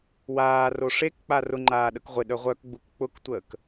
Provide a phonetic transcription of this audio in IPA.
w aː r o ʂ e k k͡p a r ʊ ŋ͡ǃ aː ɗ ə k ʁʷ ɪ ɗ œ ʁʷ œ k ɡ͡b u k k͡p ʊ k tʷ əː k

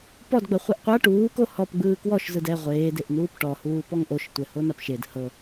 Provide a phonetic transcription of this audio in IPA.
p ɔ d ɡ͡b ɤ χʷ i ʔ qʷ a ʈ uː k o h ɔ p ɡ͡b ɯː k w ɔ ʃ z ɯ d ɛ ʁʷ eː d e ʔ n uː p ʈ ɔ h uː p ɔ ŋ ʔ o ʃ tʷ ɛ h o n a p ʃ e d h ɤ

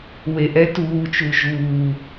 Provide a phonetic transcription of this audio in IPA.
w e ʔ ɛ t uː t͡ʃ u ʒ uː

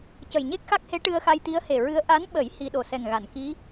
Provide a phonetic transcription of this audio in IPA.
c ə˨˩ j ɲ e˦˥ k̚ x a˦˥ k̚ h e˧˥ ʈ ɨ˧ ə̯ x a˧ j t̪ i˧˥ ə̯ h e˨˩ ɹ ɨ˧˥ ə̯ ʔ a˧˥ n ɓ ə˨˩˦ j h i˧ ɗ o˨˩ s ɛ˨˩ ŋ ɣ a˨˩˨ n k i˧˥

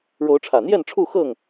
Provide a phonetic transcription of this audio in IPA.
ɻ o˨˦ ʊ̯ ʈ͡ʂʰ ä˨˩ n̪ j ɛ˥˨ n ʈ͡ʂʰ u˥˨ x ɤ˥˨ ŋ

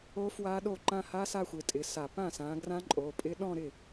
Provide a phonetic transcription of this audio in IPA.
o˦˥ f w a˦˥ ɗ o˥˩ ǃ ã˥˧ h a˦˥ s a˥˧ xʷ ɪ˩˧˩ tʼ ɪ˩˧˩ s a˧˩˧ p ã˥˩ s ã˨˦ ɡ r ã˦˥ ǃʼ o˩˧˩ pʼ ɪ˦˥ ɗ ɔ̃˥˧ ɾ ɪ˥˩

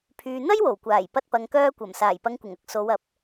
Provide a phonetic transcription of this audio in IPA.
pʰ yː˨ n̪ ɐ˥ j w o˨˩ w kʷ aː˨˩ j p ɐ˧ t̚ p ɐ˨ ŋ k œː˧ kʷ ɐ˨˩ m s aː˨˩ j p ɐ˨ ŋ kʷ ɪ˨˩ ŋ ɐ˧ k̚ s o˨˧ w ɐ˨˥ p̚

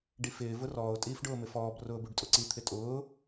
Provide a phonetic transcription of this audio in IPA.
ɖ i f ɪː v ʊ r ɔː ʊ̯ tʼ iː f ɖ ʊː m ɪ f ɔː b r ʊː b u ɖ tʼ ʊ ǀ i t̪ʰ ɪ tʼ ʊː

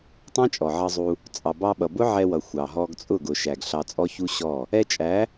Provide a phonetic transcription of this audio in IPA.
tˤ ɑ̃˦ t͡ʃʼ ɔ˨ ʕ ʌ˧ zˤ u˧ | t͡sʼ ɑ˨ b ɑ˧ ɓ ʌ˨ b ʊ˦ ʕ ɛ˧ w ʌ˨ xʷ ɑ˨ ɦ ɔ˧ ɡ t͡sʼ ʊ˦˨ ɡ ʊ˨ ʃ æ˨ ɡ ɬ ɑ˧ t͡sʼ ɔ˦ ç u˦ ɕ ɔ˦˨ | ɛ˧ t͡ʃʼ æ˨˦

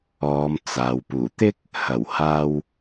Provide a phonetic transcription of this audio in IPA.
ɔː˨˧ m t͡s aː˨ w p uː˨˩ t̪ ɪ˥ k̚ | h ɐ˨˩ w h aː˧ w

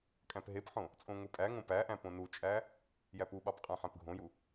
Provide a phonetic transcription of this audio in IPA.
kʼ æ̃ p ɦ e p ħ õ | t͡sʼ õ ŋʷ e pʼ æ ŋ õ p æ ʔ æ̃ p õ n u t͡ʃʼ æ | j æ p u ɓ ɑ p qʼ æ̃ ħ æ̃ p ɡʱ õ j u

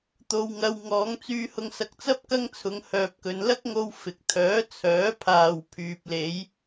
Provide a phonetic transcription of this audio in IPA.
t̪ o˧ w ŋ ɐ˧ w ŋ ɔː˨˧ ŋ t͡s yː˧ h ʊ˧ ŋ s ɐ˧ k̚ t͡s ɐ˥ p̚ k ɐ˥ ŋ t͡sʰ ʊ˨˧ ŋ h œː˧ p̚ k ɵ˧ n l ɐ˥ k̚ ŋ o˧ w f ɪ˨ k̚ t̪ʰ œː˨˥ t͡sʰ œː˨˥ pʰ aː˨ w pʰ yː˨ p̚ l e˨˧ j

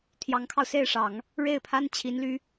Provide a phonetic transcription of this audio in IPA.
t̪ʰ j ɑ˧˥ ŋ kʰ ɑ˧ ʊ̯ s e˥˩ ɪ̯ ʂ ɑ˨˩˦ ŋ | ɻ e˥˩ ɪ̯ pʰ a˥ n t͡ɕʰ i˧˥ n l y˧˥

